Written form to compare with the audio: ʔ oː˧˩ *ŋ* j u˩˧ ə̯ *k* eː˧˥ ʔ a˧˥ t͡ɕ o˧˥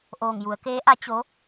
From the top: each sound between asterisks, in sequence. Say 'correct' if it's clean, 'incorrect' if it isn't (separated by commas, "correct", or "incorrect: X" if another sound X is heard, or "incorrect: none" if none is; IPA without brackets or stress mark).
correct, correct